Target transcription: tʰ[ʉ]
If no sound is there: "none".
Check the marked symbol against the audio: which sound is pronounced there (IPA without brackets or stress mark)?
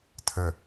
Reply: ə